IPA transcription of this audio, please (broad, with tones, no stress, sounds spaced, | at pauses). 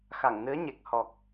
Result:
x a˧˩ ŋ n ɨ˨˦ ə̯ ɲ e˨˩ k̚ h ɔ˨˩ k̚